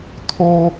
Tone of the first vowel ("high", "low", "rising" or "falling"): low